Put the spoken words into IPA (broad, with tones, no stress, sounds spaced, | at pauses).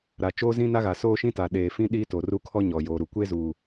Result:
ɾ a˨ t͡ʃ oː˦ z ĩ˦ n a˦ ɣ a˨ s oː˦ ʃ ĩ˦ t a˨ ɗ eː˨ f ĩ˦ ɗ i˦ t o˨ r u˦ kʰ ɔ˦ ɲ ɔ˨ j oː˨ ɾ u˨ kʷ e˦ z uː˨